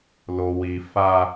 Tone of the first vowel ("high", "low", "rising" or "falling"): low